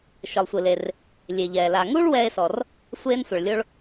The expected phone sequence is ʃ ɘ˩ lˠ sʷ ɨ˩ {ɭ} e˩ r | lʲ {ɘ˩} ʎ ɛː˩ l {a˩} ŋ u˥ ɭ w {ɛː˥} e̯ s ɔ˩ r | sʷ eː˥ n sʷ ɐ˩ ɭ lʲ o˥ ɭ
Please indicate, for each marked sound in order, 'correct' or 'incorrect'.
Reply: incorrect: l, incorrect: e˩, correct, correct

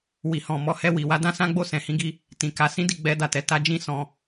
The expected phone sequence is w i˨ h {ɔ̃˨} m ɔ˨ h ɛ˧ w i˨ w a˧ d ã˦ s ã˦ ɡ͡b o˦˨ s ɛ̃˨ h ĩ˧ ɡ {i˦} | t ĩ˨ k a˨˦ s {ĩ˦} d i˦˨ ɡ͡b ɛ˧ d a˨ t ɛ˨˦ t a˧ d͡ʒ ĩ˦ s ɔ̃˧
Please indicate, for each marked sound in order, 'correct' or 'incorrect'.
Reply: correct, correct, correct

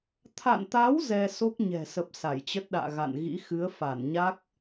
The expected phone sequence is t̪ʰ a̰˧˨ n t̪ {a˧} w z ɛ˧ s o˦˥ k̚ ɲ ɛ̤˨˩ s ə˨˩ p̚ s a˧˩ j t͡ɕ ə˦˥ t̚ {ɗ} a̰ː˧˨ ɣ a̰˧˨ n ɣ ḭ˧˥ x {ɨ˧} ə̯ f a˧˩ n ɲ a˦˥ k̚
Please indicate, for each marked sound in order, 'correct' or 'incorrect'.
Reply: incorrect: a˨˦, correct, incorrect: ɨ˨˦

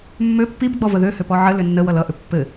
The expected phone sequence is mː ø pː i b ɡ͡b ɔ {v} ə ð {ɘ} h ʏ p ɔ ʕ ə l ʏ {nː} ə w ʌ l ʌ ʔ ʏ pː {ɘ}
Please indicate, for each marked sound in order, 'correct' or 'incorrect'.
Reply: correct, incorrect: ø, correct, correct

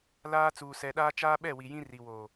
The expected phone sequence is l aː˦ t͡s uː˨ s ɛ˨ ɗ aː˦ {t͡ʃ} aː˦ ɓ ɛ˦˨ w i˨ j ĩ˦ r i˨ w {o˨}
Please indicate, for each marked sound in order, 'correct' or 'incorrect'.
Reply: correct, correct

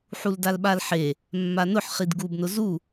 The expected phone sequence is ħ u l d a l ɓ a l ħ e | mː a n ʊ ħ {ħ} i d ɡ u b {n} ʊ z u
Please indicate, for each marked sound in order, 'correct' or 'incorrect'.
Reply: incorrect: χ, correct

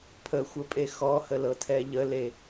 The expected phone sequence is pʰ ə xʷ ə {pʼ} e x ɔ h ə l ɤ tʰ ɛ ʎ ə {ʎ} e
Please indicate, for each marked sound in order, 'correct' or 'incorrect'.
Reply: correct, incorrect: l

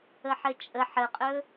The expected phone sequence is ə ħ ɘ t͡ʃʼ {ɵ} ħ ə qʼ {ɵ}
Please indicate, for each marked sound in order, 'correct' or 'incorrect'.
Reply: incorrect: ə, correct

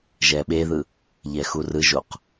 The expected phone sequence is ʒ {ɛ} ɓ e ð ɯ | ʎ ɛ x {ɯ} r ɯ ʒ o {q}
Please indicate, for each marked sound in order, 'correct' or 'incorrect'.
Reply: correct, incorrect: u, correct

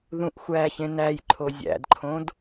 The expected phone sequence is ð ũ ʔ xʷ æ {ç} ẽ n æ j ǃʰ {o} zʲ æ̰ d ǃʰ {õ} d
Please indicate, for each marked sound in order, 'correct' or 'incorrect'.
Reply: correct, correct, correct

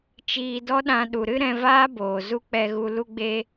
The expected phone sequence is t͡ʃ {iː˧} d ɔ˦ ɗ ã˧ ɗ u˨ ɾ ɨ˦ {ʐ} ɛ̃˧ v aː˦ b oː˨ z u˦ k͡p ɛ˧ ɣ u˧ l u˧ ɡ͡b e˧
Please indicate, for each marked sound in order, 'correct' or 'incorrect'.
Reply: correct, incorrect: ɾ

